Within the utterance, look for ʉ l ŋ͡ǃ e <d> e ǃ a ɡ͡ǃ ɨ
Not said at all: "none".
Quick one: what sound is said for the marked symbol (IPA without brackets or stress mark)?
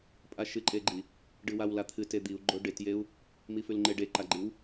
ɖ